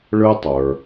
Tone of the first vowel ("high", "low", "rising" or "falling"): high